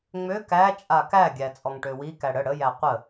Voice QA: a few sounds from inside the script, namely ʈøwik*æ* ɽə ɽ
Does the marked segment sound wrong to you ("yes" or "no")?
no